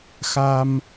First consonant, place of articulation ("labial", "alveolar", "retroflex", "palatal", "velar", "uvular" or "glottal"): velar